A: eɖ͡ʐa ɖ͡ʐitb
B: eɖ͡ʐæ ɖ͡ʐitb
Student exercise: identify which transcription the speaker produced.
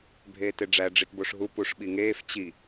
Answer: B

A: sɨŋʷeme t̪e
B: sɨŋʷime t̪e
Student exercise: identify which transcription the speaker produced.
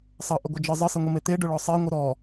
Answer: B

